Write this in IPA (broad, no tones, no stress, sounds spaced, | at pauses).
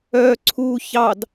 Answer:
œ ǀʰ u ç ɑ d